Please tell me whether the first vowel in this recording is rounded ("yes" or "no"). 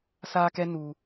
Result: no